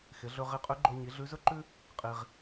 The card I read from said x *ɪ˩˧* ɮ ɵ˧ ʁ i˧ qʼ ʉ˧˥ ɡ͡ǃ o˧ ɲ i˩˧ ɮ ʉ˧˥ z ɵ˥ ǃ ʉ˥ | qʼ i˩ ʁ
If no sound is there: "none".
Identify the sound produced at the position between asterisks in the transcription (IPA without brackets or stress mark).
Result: ɪ˩˧